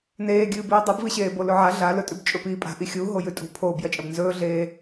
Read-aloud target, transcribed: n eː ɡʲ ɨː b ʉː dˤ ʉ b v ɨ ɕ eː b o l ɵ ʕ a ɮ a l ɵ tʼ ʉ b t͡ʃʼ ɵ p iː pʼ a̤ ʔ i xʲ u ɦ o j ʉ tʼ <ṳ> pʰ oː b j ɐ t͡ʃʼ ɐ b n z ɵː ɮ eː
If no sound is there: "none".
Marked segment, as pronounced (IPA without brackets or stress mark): ṳ